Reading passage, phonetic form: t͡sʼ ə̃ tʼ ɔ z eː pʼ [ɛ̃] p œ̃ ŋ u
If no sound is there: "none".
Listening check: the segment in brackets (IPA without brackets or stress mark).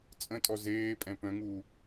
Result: ɛ̃